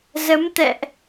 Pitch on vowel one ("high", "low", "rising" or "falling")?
rising